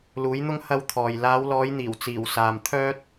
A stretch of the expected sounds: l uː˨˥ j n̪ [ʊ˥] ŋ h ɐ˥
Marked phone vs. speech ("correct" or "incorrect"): correct